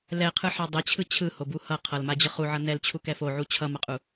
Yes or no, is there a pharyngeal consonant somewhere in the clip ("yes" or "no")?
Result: yes